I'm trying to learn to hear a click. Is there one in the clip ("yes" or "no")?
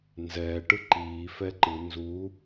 yes